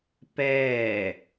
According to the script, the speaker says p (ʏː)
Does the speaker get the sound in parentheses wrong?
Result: yes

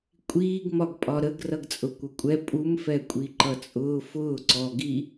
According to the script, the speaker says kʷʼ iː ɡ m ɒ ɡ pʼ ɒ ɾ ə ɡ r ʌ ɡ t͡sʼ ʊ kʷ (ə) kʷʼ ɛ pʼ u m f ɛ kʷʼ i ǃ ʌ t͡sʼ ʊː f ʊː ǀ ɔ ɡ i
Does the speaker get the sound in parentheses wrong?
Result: no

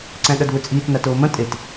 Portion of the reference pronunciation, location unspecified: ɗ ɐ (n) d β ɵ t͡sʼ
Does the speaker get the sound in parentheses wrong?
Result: yes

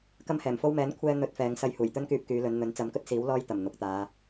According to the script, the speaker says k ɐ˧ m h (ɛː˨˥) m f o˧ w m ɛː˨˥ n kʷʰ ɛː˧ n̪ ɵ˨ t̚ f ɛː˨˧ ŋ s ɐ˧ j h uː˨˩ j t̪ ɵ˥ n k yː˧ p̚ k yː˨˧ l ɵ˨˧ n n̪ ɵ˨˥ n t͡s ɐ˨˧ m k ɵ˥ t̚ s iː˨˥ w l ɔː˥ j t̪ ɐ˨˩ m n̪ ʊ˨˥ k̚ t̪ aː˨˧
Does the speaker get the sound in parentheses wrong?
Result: yes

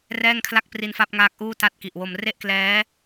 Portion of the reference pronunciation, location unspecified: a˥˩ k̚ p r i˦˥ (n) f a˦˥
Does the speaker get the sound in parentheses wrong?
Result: no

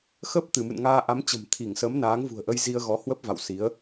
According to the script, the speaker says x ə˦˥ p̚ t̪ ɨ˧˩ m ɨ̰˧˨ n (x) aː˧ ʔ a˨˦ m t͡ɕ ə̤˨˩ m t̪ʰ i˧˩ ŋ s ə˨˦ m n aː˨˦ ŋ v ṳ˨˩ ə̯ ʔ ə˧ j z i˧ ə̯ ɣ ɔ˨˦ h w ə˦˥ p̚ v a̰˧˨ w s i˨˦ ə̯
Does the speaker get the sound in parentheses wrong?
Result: yes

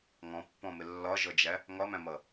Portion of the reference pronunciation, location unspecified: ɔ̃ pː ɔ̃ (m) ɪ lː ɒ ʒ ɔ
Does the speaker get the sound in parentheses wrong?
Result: no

